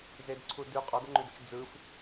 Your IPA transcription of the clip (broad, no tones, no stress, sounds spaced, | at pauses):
z e d ǀʰ u d ʉ qʼ ɔ d ə ŋ͡ǃ ʉ d ɯ t͡ʃ d͡z ɯ f